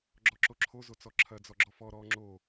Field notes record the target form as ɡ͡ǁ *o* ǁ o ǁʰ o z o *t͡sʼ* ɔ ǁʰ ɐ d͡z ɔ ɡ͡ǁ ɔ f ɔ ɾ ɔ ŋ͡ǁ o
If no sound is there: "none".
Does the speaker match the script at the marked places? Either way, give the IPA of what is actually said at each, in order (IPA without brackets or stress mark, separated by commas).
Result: ɔ, t͡s